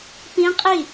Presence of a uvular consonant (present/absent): present